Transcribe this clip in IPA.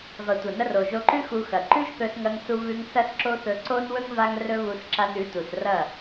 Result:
vɐ˨tʷɐ˨nɐ˧r o˨ʒo˧ǃʉ˦ xu˧xɐ˨ ǃʉ˦ʒθɵ˧sŋɐ˧ŋsu˧ βʉ˧ŋ sɐ˦sǁo˦θɵ˧ ǀo˦nwɵ˦ŋ va˦ŋrɵ˦βu˧s ǁa˧nʉ˨˦tu˨srɐ˦˨

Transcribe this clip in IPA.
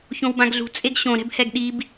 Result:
çõwbãɡɮṳ t͡sʼeɡɕõ ɾɛ̤bhɛɡɗib

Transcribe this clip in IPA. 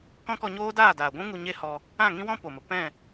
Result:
kɔ̃˦kɔ˧ɲoː˦ daː˦˨daː˨ɡʷũ˦ ŋu˧ɲe˦hɔ˧ | ã˦˨ŋĩ˦wɔ̃˦ po˨mə˨ pɛ̃˦˨

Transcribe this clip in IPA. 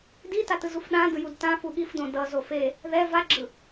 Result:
dita tɯzufɗãdɯ judtãfu ɠifdõ dʌzo fe | ðɛ vaɡ͡ǁɯ

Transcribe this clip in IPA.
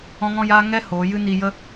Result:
ɔ̃˧ŋɔ̃˧jaː˧ ŋɛ˦ hoː˨˦ jɨ˦niː˧ jə˦

